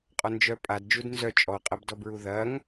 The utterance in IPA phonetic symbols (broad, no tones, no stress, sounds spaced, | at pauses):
qʼ ɔ n d͡ʒ œ pʼ a d d͡ʒ u d n z œ t͡ʃʼ ɔ qʼ ɐ b d ɔ b ɹ u ð ɐ ŋ